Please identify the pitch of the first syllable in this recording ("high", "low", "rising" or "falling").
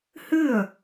falling